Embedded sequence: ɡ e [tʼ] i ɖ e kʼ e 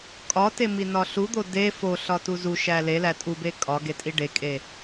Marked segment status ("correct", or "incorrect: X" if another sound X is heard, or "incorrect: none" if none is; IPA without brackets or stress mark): correct